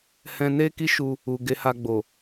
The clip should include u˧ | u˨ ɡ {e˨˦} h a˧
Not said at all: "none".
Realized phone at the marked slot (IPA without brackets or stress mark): e˨˦